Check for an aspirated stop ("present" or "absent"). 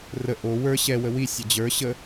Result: absent